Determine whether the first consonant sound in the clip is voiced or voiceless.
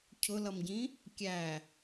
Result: voiceless